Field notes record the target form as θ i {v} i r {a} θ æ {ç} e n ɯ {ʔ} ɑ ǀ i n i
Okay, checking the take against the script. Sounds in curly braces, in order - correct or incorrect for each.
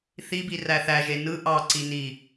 incorrect, incorrect, incorrect, correct

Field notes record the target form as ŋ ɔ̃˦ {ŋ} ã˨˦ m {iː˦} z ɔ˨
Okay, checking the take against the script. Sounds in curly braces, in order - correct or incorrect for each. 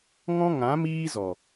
correct, correct

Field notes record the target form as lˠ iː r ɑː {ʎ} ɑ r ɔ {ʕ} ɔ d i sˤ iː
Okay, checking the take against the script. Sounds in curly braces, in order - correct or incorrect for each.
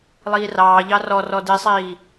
correct, incorrect

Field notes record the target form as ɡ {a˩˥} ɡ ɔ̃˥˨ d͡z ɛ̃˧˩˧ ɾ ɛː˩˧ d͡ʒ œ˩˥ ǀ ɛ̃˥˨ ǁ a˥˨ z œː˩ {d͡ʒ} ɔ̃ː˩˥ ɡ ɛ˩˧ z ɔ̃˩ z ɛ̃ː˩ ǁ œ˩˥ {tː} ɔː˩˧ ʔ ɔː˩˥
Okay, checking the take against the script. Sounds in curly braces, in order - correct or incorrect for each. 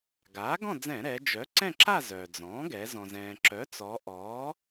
incorrect, incorrect, incorrect

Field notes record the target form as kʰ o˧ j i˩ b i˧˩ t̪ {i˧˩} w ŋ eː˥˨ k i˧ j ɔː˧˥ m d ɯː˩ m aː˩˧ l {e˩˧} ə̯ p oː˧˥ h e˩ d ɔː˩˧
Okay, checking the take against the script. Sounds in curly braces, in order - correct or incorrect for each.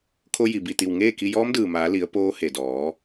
correct, incorrect

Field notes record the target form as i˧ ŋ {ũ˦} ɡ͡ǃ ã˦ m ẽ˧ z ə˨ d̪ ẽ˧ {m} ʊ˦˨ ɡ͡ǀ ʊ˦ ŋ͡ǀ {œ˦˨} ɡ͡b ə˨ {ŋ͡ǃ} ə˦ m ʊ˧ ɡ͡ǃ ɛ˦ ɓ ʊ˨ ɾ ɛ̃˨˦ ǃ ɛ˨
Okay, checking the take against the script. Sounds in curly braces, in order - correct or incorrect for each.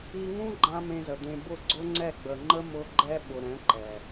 correct, incorrect, incorrect, correct

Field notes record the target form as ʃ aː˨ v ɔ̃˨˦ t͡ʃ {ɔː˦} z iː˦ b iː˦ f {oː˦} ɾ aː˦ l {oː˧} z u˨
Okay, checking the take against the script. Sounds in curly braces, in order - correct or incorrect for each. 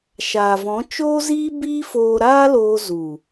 incorrect, incorrect, correct

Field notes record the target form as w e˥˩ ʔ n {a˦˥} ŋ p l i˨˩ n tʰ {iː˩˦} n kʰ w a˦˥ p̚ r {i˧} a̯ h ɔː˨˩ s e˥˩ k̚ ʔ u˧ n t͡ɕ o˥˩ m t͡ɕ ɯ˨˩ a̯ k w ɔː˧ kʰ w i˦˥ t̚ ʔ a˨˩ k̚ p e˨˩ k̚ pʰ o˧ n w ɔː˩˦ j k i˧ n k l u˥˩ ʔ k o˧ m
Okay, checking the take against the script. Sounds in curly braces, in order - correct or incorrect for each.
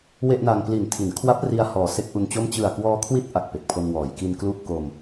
incorrect, incorrect, correct

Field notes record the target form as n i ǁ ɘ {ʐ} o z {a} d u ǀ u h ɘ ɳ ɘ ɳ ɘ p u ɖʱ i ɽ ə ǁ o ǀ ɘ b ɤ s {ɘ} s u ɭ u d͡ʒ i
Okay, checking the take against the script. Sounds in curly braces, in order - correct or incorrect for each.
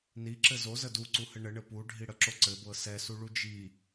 incorrect, incorrect, incorrect

